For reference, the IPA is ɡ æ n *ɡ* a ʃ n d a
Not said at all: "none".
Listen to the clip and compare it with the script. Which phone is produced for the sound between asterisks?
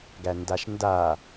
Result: d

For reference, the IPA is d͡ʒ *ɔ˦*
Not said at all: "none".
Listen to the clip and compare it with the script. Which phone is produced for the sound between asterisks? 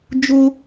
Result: ʊ˦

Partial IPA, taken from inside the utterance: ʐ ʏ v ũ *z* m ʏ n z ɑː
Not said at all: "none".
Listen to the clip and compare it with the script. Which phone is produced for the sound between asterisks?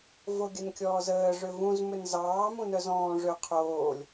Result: z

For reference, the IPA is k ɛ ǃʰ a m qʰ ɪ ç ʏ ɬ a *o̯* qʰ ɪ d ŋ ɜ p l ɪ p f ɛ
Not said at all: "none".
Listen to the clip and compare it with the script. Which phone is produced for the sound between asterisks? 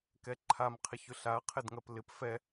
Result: ɐ̯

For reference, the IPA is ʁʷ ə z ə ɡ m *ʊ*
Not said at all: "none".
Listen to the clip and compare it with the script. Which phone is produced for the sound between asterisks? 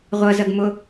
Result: ʊ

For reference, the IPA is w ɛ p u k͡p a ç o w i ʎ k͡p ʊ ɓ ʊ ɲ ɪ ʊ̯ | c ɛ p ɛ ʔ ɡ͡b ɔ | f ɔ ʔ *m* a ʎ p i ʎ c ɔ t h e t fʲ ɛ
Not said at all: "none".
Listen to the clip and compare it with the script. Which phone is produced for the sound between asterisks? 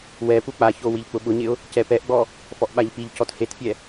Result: ɓ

